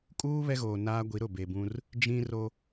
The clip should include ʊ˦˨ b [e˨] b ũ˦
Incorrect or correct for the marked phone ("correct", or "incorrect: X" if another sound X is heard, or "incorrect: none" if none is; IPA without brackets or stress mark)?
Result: correct